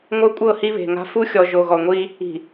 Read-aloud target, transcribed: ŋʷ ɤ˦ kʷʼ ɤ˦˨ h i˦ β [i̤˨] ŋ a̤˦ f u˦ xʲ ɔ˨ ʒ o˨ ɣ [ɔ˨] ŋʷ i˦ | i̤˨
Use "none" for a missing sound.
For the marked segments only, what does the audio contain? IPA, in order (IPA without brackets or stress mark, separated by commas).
e̤˨, ɔ˨